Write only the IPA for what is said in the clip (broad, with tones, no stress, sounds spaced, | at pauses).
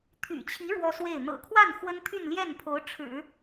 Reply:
t̪ʰ y̰˨˩ t͡ɕʰ i˧˥ ɻ w ɔ˥ s w e˥˩ ɪ̯ n̪ ɤ̰˨˩ kʰ w a˥˩ n x w ə˥ n t̪ʰ y˥˧ n l j ɛ˥˩ n pʰ o˧˥ ʊ̯ ʈ͡ʂʰ ɻ̩˨˩˦